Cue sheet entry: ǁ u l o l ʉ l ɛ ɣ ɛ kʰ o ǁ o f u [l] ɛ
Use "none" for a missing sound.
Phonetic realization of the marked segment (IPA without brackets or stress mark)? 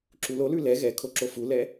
l